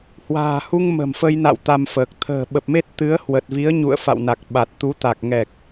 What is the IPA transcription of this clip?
hwa̤ː˨˩hu˧ŋ mə̤˨˩mfə˧jna̰˧˨w t̪a˧mfəː˨˩k̚ t̪ʰə̤ː˨˩ ɓə˨˩p̚me˦˥t̚ t̪ɨ˨˦ə̯ hwə˨˩t̚vi˨˦ə̯ɲṵ˧˨ə̯ fa̰˧˨wna˨˩k̚ ɓa˨˩t̚ t̪u˨˦ t̪a˨˩k̚ŋɛ˨˩k̚

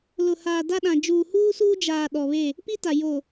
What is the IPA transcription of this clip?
lʊ˨haː˨ da˦ɗã˨ d͡ʒuː˨huː˦suː˦ d͡ʒaː˨ ɗɔ˨βe˦˨ | pi˦ta˨ jo˨

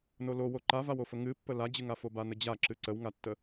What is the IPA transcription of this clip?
nolowo ǃavawofə ŋɨpːə lad͡ʑɨŋafo banəd͡ʑaǁɨ ǀəwŋatːə

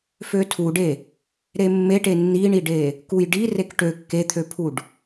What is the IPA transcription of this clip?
føtʰuɖe | ɾemːeʈe nːiɳiɖe | kujɖi rekʈø kːet̪ʰøpʰuɖ

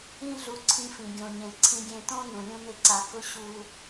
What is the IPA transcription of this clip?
ĩ˦ɮu˧ǀʰĩ˧fĩ˨ ɡʲõ˨ɲẽ˨ ǀʰĩ˧ɡʲẽ˧ tõ˦ nũ˨lʲũ˦nɪ˦ ǀa˧ kʊ˦ ɕu˧

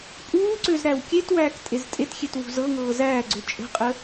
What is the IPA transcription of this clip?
pʼuːǀøz ɾæwkʲetwæːk tʼeztʼetxʲet wṳzɤŋɤː zæːɡ͡ǀø t͡ʃʼə̤qʼə

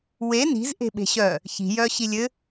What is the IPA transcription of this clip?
we ni̤zʔe̤ɓe̤ ɕœ | çi̤jœɕi lʲɘ

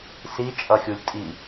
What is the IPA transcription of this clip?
sit͡ʃʼʌxʲulʲ tʼi

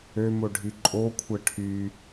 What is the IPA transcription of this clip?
ømoɖʱi ǃʼokʷʰɛ ʈʰy

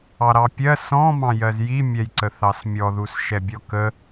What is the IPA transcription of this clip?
ɑɾɑpʲɜ sɔ̃ mɑ̃jɜzji mʲɛjǀəθɑsmʲɔ ðusʃɛbʲɔkə

